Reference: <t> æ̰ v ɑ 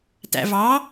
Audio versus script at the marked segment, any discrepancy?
no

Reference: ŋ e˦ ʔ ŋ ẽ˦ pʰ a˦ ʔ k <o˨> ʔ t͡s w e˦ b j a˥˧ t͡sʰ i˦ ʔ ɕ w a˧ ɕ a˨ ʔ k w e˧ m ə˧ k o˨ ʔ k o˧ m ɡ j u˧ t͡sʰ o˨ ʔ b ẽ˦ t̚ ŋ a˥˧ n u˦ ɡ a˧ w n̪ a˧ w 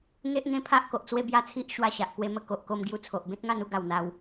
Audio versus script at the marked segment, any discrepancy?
no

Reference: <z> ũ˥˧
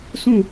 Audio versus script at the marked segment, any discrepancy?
yes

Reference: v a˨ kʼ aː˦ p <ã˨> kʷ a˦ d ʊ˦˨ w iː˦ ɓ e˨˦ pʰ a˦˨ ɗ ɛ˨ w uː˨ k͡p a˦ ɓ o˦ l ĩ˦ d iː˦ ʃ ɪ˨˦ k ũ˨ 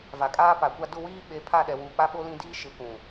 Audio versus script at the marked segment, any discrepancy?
yes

